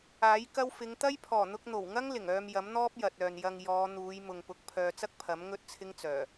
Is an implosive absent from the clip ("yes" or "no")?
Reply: yes